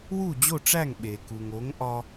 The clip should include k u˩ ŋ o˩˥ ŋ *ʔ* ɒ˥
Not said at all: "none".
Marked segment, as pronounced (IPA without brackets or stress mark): ʔ